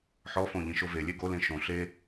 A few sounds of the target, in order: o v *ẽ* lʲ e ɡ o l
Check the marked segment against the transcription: incorrect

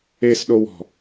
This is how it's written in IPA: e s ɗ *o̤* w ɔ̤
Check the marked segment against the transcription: incorrect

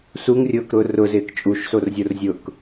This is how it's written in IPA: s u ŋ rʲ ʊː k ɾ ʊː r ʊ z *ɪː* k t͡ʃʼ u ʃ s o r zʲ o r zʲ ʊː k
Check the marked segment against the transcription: correct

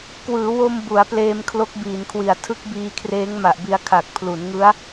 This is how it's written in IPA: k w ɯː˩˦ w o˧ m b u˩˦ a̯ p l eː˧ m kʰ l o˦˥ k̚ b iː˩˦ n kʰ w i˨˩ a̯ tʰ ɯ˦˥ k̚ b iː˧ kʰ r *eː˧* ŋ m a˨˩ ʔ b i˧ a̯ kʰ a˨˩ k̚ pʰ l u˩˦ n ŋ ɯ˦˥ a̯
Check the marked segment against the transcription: incorrect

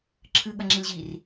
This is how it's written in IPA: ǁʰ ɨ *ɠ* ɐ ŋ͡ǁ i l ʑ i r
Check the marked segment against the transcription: correct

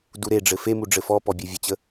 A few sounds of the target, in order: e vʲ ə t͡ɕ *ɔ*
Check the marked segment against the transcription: incorrect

